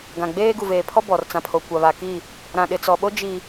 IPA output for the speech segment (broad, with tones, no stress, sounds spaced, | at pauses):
ɡ ã˨ ɡ͡b eː˦ ɡ u˨ v eː˨ pʰ ɔ˦ b ɔ˨ r t͡s ã˨ pʰ o˨ kʷ a˨ β a˨ k i˦˨ | ɾ ã˨ ɗ ɪ˨ t͡s ɔ˨ ɓ o˦ d͡ʒ i˨